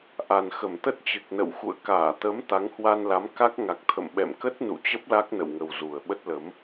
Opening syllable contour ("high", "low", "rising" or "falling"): low